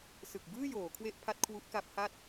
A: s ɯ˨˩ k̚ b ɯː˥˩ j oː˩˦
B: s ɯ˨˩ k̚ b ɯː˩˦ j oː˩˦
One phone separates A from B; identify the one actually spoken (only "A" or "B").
A